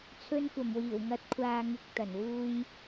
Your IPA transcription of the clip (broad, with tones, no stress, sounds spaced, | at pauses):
t͡sʰ ɵ˧ n kʷ ɐ˨˩ m w iː˨˩ w ŋ ɐ˨˥ t̚ kʷʰ aː˨ ŋ ɪ˨ k̚ t̪ ɐ˨˩ n w uː˧ j